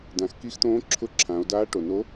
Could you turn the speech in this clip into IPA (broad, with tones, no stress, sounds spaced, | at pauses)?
d ã˩˧ x k i˧˥ x t̪ õː˧˥ ǁʰ ʊ˧˥ ǁʰ ã˩˧ o̯ d aː˧˥ ʈ o˩ n o˧˥